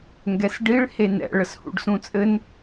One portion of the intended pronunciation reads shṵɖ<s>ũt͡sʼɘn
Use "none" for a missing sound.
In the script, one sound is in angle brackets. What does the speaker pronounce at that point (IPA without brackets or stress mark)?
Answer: s